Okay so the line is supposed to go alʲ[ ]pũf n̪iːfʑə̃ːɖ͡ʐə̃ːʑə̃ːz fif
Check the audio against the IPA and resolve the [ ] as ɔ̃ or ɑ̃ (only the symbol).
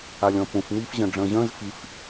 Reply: ɔ̃